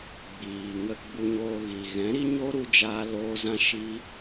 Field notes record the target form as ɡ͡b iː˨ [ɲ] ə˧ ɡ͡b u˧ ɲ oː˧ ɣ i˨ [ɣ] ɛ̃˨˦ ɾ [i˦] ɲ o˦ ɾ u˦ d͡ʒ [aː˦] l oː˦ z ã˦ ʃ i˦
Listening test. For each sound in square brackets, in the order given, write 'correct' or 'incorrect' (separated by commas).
incorrect, correct, correct, correct